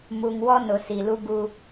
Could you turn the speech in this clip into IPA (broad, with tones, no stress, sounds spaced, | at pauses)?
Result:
m u˨ ŋ w ɔ˦ n ʊ˨ s i˨ l u˦ ɡ uː˦